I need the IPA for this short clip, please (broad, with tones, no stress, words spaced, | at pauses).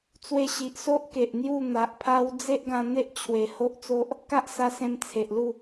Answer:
t͡swe˧ɕi˨ʔso˦ʔ ke˨ʔn̪ju˥˧n̪a˨ʔpʰa˦w d͡ze˦ʔɡã˧n̪e˦ʔ t͡ɕʰwe˨˩ ho˦ʔt͡so˦ʔ | ka˦ʔsa˧sẽ˧m t͡sʰe˨ʔlu˥˧